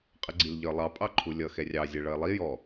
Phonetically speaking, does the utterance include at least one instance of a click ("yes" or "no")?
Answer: yes